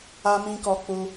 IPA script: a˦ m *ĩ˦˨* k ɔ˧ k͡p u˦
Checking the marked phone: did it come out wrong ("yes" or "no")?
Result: yes